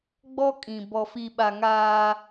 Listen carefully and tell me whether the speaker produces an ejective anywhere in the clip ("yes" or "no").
yes